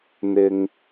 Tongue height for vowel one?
high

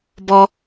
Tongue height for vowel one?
mid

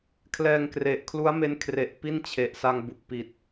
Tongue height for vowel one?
mid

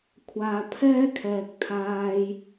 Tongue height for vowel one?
low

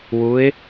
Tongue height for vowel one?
high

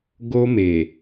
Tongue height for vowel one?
mid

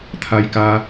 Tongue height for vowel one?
low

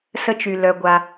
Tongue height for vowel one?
mid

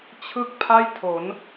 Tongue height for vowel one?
high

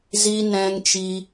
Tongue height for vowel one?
high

